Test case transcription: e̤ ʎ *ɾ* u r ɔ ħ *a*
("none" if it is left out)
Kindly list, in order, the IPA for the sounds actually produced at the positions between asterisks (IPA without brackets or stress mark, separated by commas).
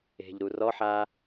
ɾ, a